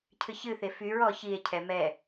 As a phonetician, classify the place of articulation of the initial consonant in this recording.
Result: palatal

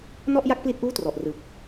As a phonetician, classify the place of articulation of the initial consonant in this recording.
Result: alveolar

